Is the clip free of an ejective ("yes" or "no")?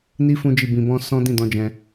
yes